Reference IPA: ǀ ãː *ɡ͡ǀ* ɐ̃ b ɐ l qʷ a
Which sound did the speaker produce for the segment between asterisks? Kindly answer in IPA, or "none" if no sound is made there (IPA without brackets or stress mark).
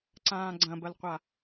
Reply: ɡ͡ǀ